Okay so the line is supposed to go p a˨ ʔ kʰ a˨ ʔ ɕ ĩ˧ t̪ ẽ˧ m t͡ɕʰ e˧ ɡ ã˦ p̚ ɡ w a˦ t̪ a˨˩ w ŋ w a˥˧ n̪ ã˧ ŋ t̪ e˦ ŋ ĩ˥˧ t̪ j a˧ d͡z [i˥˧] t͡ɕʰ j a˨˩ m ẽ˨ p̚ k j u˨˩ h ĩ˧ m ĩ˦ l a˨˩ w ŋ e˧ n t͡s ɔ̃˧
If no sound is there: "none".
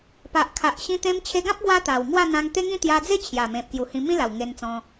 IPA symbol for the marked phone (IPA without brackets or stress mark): e˥˧